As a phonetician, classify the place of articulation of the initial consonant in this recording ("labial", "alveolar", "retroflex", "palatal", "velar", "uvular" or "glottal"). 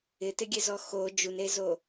alveolar